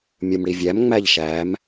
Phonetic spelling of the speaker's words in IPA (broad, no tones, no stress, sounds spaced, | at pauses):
mʲ ɯ m ɽ i vʲ æ m ŋ͡m æ ʎ ʃ æ m